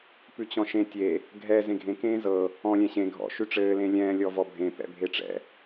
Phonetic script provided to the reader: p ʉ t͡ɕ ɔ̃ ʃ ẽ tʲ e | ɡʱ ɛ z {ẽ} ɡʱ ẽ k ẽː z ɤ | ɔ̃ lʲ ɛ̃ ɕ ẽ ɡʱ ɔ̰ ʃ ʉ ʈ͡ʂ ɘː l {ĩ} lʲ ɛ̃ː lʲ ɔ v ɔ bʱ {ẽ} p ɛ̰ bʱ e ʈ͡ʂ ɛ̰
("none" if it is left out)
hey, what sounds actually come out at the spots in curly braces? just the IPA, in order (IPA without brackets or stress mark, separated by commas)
ẽ, ẽ, ẽ